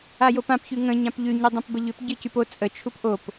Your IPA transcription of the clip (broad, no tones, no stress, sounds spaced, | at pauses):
a j o p ã p ç ʉ ŋ ə̃ ɲ ã p ʎ ʉ ɲ ɨ dˤ õ p b ə ʎ ʏ p ɟ ɨ c y p o t͡sʼ ə t͡ʃʰ u p ʔ o p